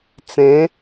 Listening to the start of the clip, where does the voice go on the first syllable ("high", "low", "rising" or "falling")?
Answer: rising